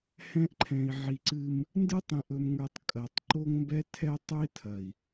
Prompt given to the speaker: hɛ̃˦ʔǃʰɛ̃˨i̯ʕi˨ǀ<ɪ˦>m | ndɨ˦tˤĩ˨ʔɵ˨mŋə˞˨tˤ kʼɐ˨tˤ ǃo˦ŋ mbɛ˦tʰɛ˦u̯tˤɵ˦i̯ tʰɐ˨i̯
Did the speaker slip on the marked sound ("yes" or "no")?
yes